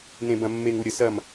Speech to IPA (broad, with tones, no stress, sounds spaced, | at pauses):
n ẽ˧ b ɐ̃˧ mː e˧ ŋ u˧ ɾʲ ə˧ s ɐ˥˧ m